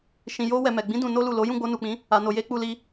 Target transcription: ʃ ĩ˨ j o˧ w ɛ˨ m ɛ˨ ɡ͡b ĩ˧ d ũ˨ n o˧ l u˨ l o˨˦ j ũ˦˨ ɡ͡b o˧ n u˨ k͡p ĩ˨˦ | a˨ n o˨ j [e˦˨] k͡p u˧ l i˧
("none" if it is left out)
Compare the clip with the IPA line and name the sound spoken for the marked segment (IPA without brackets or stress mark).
e˧